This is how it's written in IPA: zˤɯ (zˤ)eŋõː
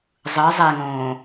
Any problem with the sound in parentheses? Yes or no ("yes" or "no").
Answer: no